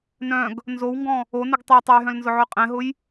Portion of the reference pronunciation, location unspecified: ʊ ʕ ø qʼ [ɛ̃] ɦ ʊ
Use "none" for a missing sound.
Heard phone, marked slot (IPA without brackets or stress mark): ɛ̃